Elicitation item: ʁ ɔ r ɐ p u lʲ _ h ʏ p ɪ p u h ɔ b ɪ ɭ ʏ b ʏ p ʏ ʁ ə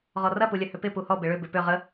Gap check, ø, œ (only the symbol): œ